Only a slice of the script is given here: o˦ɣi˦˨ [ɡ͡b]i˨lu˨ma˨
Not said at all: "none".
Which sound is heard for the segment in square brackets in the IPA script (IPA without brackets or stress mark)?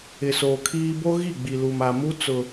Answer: ɡ͡b